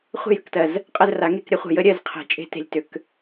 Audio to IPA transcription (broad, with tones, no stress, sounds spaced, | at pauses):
χʷ e̤˥˨ j ʏ˥˨ k t ɜ˩˧˩ z | qʼ ə˥˨ z r a˨˩˦ ŋ e˥˨ k ɾʲ ə˨˩˦ χʷ ə̤˨˩˦ j ə˨˩˦ ɾʲ ɜ˥˨ z qʰ e̤˨˩˦ t͡ʃʼ e̤˧ t e̤˧ lʲ t ʏ˨˩˦ k